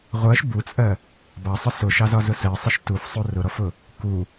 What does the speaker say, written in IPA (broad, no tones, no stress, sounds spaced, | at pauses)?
ʁʷ ɜ ʃ b u t͡sʼ ɜ | b ɑ sˤ ʊ s ʊ ʃ ɑ z ɒ z ʊ s ɜ sˤ ɪ ʃ t u f sˤ u r ʊ ɾ ɔ f ʊ | k u